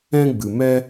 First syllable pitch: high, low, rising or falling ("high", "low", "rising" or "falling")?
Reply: high